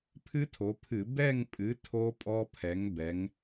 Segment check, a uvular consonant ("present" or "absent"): absent